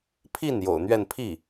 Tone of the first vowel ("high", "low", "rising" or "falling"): falling